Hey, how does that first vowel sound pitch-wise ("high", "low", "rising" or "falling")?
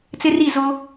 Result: high